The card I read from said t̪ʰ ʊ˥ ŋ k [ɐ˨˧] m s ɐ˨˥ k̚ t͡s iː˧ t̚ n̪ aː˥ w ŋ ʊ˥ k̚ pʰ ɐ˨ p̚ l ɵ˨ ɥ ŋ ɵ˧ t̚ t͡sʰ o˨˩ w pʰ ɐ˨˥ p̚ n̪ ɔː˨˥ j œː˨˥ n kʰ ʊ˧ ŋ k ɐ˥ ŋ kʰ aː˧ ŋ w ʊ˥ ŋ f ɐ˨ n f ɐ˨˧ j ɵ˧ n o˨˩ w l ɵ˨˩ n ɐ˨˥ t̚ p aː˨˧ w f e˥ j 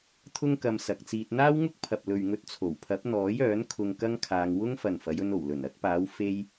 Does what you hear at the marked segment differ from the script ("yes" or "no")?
yes